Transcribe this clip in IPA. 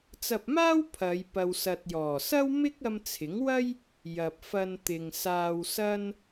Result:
t͡s ɐ˧ p̚ m aː˥ w pʰ ɐ˨˧ j p ɐ˨ w s ɐ˨ t̚ j ɔː˨˩ s ɐ˥ w m ɪ˥ k̚ ɐ˧ m t͡sʰ ɪ˨˥ ŋ w ɐ˥ j | j ɐ˨ p̚ f ɐ˧ n t̪ ɪ˨ ŋ s aː˧ w s ɐ˥ n

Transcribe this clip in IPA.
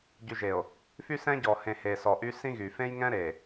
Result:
ɟ y˨ ʒ e˨ o̯ | f y˦ s ɛ̃˦ ɟ ɔ˨ h ẽ˨ h e˨ s ɔ˨ ʔ y˦ s ĩ˦ ɣ y˨ f ẽ˦ j ŋ ɛ̃˦ ɾ e˨

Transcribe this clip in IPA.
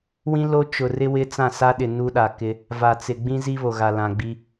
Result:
w ĩ˦ l o˦ t͡ʃ ʊ˨ r ɪ˦ w ɪ˦ t͡s ã˦˨ s a˦ ɗ ɪ˨ n u˦ ɗ a˨ k ɪ˦ | v a˨ t͡s ɪ˨ ɡ͡b ĩ˦ z i˦ β o˨ ɣ a˨ l ã˨ ɡ͡b i˦

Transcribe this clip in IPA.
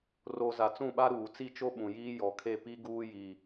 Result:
r o˨ z a˨ t͡s ũ˦˨ ɓ a˦ ɾ uː˨ t͡s i˦˨ t͡ʃ o˦ ɓ ũ˨ j iː˦ j ɔ˨˦ kʰ e˦˨ p i˦ ɡ uː˦ j i˨

